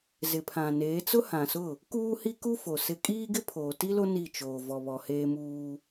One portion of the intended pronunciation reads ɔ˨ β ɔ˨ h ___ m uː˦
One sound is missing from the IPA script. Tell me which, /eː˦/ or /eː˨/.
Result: eː˦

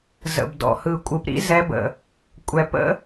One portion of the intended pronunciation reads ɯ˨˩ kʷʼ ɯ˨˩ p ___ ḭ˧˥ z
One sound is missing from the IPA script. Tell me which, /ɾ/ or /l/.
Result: ɾ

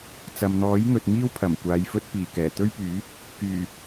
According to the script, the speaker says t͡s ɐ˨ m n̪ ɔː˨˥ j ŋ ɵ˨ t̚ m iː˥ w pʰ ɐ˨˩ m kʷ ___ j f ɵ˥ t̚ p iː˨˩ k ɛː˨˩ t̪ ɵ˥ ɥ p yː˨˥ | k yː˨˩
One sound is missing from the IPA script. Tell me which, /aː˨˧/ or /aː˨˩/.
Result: aː˨˧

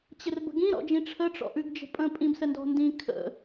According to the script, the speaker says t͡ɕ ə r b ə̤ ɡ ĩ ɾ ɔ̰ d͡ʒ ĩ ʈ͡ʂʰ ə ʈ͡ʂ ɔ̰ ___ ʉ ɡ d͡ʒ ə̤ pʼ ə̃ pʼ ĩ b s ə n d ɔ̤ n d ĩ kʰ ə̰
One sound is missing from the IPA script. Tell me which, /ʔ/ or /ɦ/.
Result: ʔ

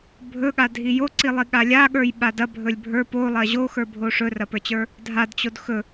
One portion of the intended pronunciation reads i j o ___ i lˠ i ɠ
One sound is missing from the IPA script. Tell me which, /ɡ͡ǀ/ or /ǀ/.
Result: ǀ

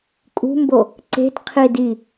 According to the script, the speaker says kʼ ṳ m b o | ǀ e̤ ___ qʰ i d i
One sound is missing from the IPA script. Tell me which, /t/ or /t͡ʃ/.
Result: t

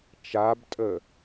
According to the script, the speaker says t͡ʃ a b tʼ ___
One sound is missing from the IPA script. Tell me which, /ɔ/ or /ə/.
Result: ə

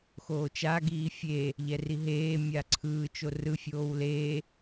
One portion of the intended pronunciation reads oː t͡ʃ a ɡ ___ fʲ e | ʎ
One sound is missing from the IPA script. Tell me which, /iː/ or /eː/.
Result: iː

